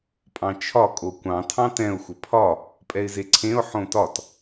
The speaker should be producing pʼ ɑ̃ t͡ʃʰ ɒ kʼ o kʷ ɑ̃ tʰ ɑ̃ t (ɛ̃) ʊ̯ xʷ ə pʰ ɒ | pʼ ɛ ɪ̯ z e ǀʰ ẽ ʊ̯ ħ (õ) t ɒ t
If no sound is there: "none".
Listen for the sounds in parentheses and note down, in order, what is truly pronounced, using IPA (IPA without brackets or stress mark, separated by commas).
ɛ̃, õ